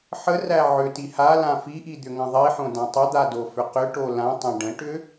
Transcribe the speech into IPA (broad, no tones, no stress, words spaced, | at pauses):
ħəræ ʕʏti halã fiʔi d̪ʏŋə̃ðˤiħõ dãtˤəd̪a dofʏqʏʈo lãtˤã ɖə̃ʈʏ